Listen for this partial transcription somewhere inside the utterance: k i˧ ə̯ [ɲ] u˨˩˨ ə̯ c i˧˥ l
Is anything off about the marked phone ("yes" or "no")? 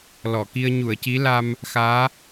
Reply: no